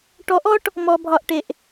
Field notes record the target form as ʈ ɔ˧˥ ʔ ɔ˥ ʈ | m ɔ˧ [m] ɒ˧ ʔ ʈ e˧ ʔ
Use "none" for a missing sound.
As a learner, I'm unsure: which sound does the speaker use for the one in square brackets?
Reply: bʱ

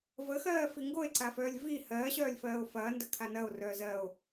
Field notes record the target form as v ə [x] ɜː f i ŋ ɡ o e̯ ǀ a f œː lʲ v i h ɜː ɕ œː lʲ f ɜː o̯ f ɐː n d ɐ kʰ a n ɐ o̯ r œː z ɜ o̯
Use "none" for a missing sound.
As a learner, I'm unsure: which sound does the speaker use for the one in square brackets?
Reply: x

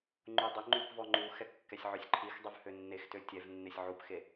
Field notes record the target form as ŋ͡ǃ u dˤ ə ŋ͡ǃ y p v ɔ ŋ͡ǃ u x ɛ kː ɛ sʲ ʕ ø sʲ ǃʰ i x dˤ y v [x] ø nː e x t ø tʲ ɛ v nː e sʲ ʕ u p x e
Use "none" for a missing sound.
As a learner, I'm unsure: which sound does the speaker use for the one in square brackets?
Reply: h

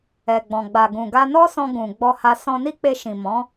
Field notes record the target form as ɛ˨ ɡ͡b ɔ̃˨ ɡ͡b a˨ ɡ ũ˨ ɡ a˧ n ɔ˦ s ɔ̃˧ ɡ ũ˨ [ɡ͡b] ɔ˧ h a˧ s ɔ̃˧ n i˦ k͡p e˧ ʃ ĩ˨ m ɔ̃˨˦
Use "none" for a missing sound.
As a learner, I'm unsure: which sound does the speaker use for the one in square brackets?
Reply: ɡ͡b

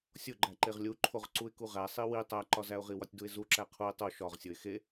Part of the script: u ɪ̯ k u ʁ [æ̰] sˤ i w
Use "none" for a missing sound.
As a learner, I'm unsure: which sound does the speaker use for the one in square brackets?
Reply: æ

